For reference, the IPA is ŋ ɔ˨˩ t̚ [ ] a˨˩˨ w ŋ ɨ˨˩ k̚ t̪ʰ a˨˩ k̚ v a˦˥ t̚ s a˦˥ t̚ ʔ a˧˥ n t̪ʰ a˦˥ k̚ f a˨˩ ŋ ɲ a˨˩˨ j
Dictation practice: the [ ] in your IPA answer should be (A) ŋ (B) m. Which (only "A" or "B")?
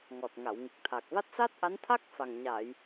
A